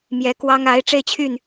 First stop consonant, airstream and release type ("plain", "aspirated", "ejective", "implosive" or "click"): plain